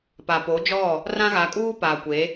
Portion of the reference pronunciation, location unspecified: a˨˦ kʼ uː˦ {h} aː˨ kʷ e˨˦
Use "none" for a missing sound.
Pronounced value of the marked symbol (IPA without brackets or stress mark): p